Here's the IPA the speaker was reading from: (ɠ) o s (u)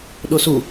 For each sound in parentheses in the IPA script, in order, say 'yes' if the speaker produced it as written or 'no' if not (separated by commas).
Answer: no, yes